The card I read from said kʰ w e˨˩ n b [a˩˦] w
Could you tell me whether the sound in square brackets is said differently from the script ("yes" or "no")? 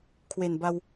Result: yes